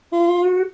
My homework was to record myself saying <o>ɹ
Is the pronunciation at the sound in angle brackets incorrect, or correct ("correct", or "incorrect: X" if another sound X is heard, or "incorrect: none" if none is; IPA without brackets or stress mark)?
incorrect: õ